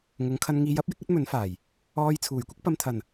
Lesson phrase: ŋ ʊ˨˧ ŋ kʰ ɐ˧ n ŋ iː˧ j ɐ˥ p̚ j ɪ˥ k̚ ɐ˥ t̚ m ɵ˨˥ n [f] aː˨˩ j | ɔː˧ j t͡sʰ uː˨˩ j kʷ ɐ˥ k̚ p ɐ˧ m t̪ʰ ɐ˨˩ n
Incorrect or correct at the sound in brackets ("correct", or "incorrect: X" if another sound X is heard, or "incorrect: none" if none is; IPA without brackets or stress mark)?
correct